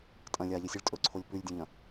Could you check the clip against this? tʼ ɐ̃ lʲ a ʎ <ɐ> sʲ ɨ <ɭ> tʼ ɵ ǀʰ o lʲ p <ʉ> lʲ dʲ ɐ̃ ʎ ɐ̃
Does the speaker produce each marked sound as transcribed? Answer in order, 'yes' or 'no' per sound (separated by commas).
yes, yes, yes